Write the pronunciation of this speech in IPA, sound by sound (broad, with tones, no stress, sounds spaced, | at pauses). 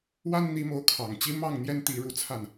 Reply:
w a˦ n n̪ i˨˦ m o˨˦ ʊ̯ kʰ ɑ˨˩ ŋ t͡ɕ i˦ m ɑ˥˨ ŋ n̪ j ɛ˦ n t̪ i˨˦ ɻ u˨˦ t͡sʰ a˥˨ n